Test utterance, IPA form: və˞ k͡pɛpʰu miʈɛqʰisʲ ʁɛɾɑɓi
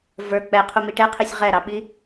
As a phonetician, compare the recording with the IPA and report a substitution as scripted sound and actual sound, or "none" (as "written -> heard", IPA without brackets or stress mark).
pʰ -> qʰ